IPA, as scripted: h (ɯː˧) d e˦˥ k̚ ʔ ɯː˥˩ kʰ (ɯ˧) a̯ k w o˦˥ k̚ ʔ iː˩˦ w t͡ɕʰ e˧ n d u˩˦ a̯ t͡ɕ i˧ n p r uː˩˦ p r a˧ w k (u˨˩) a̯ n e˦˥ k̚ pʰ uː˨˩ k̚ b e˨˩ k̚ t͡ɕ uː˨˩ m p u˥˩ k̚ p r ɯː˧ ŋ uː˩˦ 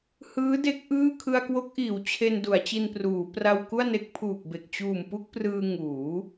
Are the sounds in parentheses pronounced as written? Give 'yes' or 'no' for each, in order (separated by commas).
no, yes, no